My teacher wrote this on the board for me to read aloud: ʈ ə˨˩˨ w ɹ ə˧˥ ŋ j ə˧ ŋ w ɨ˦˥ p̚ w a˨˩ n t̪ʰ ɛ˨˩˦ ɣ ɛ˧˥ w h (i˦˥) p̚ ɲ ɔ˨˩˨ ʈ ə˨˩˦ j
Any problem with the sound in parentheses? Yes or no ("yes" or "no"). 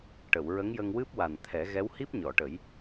no